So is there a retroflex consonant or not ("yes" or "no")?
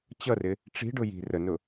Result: yes